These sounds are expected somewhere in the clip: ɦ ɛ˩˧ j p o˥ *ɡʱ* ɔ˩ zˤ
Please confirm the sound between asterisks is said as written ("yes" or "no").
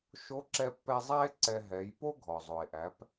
yes